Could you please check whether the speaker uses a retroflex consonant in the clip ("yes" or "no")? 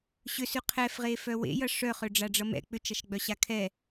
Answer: yes